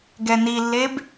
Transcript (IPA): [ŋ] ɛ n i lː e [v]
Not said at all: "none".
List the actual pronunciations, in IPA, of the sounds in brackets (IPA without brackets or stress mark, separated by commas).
ɡ, b